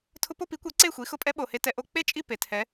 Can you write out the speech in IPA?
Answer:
tʰʊ˧po˥˧pi˩˥kʷɛ˩˥ ǀe˥˩xʷi˩˥ xʊ˧pʼɛ˦˥ɓo˩he˧ tɛ˧ ʔo˧ k͡pe˥˧t͡ʃʼi˥˩ pe˩tʰɛ˩˥

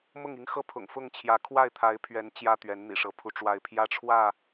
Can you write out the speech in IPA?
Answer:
mʊ˥˨ŋi˦ŋxɤ˥˨ pʰʊ̰˨˩ŋfʊ˥˨ŋt͡ɕʰjä˨˦ kʰwa˥˨ɪ̯t̪ʰa˨˦ɪ̯pʰɥɛ˨˦n t͡ɕjä˦t̪ɥɛ˨˦n n̪ḭ˨˩ʂɤ˨˦pʰu˧ʈ͡ʂwa˥˨ɪ̯ pʰjä˦ʈ͡ʂʰwä˥˨

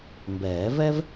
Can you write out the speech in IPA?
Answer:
mbɛː˨˩˦vɛ˥v

